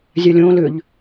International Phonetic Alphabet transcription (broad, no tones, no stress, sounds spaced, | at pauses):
zʲ a lʲ õː l ʏ ʎ